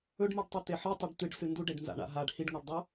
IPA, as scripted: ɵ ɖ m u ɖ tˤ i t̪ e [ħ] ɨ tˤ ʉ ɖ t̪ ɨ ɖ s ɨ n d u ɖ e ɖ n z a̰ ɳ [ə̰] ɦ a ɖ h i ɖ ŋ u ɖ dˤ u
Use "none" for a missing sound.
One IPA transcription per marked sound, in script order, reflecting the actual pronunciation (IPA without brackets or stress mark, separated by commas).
ħ, a̰